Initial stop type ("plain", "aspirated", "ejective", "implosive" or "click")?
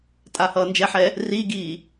ejective